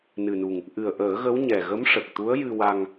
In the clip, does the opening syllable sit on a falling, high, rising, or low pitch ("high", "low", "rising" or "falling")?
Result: low